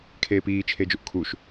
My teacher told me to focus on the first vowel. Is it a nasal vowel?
no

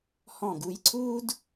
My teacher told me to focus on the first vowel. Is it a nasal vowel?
yes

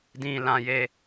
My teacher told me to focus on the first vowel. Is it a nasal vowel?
yes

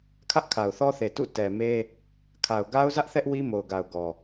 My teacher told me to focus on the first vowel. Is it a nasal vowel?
no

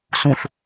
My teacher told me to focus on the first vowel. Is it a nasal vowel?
yes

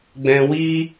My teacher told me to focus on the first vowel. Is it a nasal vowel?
yes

